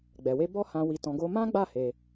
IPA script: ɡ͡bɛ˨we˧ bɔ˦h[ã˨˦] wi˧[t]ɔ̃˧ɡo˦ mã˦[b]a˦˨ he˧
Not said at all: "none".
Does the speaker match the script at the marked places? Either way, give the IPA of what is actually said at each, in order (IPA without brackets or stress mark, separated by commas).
ã˧, t, ɡ͡b